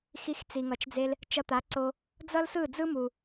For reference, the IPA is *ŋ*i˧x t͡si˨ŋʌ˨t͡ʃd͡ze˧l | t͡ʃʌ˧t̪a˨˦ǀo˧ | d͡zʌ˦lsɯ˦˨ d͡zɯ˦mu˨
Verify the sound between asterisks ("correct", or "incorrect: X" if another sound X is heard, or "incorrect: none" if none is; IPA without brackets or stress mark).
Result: incorrect: x